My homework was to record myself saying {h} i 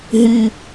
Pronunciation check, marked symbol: incorrect: ɦ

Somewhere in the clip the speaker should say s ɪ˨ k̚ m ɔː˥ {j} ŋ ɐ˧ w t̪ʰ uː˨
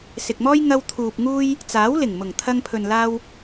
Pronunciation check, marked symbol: correct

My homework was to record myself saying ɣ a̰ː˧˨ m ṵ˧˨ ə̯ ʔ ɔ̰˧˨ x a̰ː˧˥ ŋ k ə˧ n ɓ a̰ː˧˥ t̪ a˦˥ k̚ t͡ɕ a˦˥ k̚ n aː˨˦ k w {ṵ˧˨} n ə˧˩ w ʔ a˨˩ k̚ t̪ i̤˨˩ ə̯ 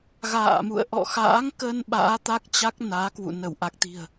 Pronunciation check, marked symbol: correct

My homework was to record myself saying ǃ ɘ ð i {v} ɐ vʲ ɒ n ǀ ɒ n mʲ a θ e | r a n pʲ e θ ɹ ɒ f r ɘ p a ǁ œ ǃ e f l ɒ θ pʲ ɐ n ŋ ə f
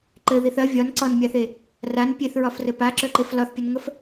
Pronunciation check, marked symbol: incorrect: θ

